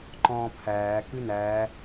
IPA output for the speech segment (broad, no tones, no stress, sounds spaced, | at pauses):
ǃ ɔ̃ː pʰ æː k ʉ n æː